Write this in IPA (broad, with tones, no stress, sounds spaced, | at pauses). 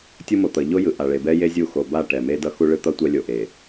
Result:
tʲ u˦ m o˨ t̪ ʌ˨ ʎ o˦ j ɯ˨ ʔ a˨ ɭ e˨ b ɛ˦ j e˦ zʲ u˦˨ x o˨ b a˦˨ ʈ ɛ˨ m e˦ d ʌ˦ x u˦ ɭ ɯ˦ t̪ ʌ˦ tʷ ɛ˦ lʲ o˨ ʔ e˨